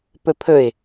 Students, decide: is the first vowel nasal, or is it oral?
oral